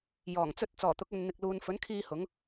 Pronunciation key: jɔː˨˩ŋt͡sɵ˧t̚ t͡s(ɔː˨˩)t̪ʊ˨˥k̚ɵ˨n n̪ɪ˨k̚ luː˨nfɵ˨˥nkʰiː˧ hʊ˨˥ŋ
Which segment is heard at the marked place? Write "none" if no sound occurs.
ɔː˨˩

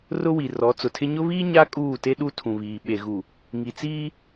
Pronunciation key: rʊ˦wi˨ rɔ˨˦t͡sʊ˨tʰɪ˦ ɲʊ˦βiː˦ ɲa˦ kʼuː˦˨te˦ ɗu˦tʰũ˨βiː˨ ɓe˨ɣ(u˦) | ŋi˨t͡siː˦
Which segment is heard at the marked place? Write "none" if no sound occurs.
u˨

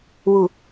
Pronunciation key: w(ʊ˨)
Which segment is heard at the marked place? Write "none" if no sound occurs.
u˨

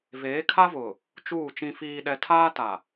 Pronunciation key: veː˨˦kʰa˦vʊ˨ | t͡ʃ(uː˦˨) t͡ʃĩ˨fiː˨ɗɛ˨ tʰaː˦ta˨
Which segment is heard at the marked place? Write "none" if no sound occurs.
uː˦˨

